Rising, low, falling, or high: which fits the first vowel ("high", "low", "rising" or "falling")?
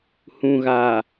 low